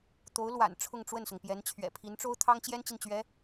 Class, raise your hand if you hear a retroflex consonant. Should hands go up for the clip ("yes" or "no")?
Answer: yes